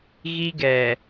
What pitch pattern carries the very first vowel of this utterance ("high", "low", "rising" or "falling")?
high